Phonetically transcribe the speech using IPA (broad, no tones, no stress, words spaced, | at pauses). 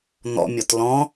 n̪ɔ̰mʲɔt lɔ̃